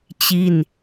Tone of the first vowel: falling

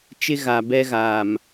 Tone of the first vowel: high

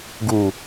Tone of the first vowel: low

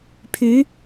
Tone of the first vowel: rising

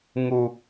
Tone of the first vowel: high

